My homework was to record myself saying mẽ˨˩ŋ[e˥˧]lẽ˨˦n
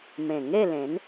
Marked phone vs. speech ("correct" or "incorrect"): correct